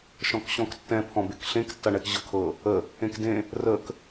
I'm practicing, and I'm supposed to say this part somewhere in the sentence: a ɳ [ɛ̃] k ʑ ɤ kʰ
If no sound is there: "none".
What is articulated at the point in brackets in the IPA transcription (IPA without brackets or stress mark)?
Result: ɛ